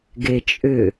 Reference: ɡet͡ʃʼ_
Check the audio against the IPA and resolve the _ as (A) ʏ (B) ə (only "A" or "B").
A